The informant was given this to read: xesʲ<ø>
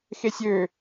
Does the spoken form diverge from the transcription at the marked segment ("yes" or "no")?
no